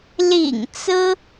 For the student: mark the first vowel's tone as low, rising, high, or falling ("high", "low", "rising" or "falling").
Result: low